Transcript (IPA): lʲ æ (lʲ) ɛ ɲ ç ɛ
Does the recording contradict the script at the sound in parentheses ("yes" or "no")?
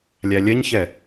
no